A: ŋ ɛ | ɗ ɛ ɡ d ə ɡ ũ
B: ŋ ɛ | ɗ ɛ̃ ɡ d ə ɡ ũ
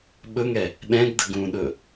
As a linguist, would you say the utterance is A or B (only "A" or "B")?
B